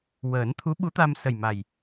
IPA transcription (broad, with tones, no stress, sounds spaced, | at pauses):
w əː˨˩˦ n t̪ʰ u˧˥ ɓ u˧˥ t̪ a˧ m s ə˨˩ j m a˨˩ j